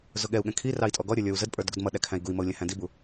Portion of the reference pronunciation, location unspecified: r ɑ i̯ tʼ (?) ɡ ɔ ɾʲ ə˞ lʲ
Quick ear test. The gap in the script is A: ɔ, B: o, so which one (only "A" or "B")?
A